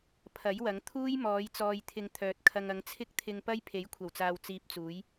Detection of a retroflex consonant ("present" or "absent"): absent